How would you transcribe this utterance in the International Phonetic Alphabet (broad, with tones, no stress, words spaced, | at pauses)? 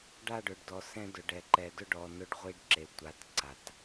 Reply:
ɖa˦˨ɖʊ˨ɖdɔ˨ sɛ̃˦dʊ˨ ɖɛ˨ ǃɛ˨dʊ˦ɖɔ˨ nʊ˦ɖʁʷi˦ɖǁe˨tʷa˨˦t ǀa˨t